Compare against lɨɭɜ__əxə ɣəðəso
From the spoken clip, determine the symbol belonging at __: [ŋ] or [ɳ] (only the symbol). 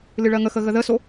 ŋ